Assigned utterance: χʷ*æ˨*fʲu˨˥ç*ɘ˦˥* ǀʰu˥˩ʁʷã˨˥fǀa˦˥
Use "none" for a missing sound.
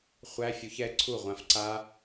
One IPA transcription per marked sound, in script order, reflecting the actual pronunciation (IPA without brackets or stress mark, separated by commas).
æ˧˥˧, ɛ˦˥